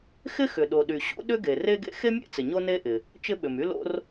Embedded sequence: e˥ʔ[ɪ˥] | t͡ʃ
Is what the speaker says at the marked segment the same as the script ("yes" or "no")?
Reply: no